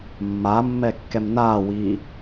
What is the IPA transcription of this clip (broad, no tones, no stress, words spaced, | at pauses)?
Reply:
mːaːmːɛːkːɛm naːwiː